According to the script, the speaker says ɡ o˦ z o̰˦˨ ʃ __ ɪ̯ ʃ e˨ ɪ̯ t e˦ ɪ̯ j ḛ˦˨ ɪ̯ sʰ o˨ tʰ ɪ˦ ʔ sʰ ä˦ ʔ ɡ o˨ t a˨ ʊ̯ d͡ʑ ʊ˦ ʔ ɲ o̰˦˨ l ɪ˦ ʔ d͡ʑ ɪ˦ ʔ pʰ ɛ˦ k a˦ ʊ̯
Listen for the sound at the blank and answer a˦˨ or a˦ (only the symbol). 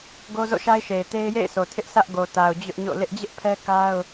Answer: a˦